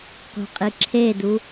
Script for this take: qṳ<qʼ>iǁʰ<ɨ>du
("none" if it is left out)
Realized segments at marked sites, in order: qʼ, e

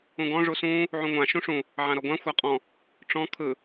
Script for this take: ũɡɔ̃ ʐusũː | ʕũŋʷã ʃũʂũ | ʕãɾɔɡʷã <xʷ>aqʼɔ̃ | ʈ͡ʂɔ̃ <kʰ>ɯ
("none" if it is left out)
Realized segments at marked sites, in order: xʷ, kʰ

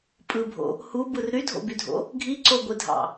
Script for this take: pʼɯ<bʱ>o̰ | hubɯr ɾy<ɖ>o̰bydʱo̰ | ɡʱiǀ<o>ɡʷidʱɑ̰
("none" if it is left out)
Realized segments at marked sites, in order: bʱ, dʱ, o

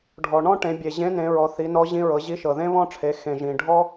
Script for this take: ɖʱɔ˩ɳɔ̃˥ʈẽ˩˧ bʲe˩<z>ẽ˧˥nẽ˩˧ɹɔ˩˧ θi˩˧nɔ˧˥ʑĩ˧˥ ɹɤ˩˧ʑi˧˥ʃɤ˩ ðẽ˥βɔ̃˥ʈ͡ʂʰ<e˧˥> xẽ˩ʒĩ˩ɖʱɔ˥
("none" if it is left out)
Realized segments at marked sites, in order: ʑ, e˩˧

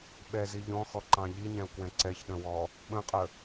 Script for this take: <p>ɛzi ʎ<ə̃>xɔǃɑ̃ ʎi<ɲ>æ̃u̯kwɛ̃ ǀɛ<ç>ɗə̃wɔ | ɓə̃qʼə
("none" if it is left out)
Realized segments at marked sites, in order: ɓ, ɔ̃, ɲ, ç

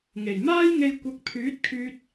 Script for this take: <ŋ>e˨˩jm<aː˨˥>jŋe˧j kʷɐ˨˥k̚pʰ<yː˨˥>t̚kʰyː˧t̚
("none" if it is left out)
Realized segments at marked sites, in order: ŋ, aː˥, yː˨˥

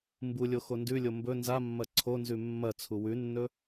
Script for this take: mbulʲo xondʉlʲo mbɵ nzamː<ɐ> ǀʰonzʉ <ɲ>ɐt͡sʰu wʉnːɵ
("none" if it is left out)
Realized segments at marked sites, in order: ɐ, mː

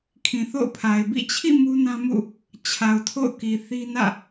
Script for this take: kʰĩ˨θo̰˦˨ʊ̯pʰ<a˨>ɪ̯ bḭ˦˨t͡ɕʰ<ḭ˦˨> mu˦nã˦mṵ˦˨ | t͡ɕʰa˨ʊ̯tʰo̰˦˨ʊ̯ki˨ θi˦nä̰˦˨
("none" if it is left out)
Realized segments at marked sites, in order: a˨, ḭ˦˨

